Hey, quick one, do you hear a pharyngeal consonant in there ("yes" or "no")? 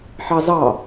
yes